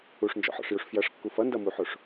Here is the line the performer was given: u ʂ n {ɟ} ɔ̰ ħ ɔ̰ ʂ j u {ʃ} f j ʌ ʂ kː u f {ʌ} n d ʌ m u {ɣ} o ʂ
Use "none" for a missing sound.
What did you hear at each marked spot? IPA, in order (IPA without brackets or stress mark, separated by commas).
d͡ʒ, ʂ, ʌ, ħ